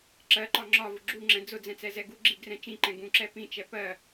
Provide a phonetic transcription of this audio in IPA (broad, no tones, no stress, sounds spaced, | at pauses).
ǁ ɜ ǃ ɒ ŋ͡ǁ ɒ v ʊ ɡ͡ǁ u ŋ͡ǁ ɛ̃ d͡z ʊ d͡z ɛ̃ t͡s ɛ z ɛ ɡ u ɡ͡ǁ i ɡ r ɛ̃ t͡ʃ ĩ ǃ ɛ̃ ɡ ũ ǁ ɛ p ĩ t͡ʃ ɛ p ɜ